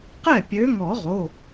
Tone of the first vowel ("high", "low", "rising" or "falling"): falling